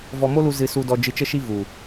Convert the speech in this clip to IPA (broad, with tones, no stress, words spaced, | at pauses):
vɔ˧mo˦lu˧ zɨ˧su˧dɔ˧ d͡ʒɨ˧t͡ʃə˦ʃi˦ vu˨